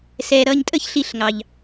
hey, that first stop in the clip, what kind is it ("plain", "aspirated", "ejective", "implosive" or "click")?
ejective